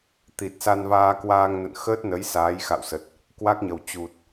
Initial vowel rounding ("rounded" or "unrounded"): unrounded